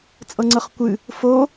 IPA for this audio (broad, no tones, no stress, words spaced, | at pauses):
t͡sʼɤŋ͡ǀɤχkʷɨ | fo